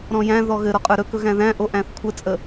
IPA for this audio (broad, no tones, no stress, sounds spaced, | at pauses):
ɾ ɔ̃ j æ̃ ð ɔ ɣ ɘ ɾ ɔ qʼ ə˞ ɾ ɵ k ɵ ɣ æ̃ ð æ̃ ʔ o ʔ æ̃ θ kʷʰ ə t͡sʼ ə